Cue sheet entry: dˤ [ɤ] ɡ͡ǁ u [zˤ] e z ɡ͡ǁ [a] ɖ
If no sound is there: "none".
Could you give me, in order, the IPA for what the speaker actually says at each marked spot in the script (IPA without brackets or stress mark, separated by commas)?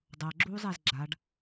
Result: ɤ, zˤ, a